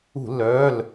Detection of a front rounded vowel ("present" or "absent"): present